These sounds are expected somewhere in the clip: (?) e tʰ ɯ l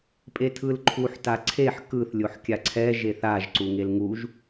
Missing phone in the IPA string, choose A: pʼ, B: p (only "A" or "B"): A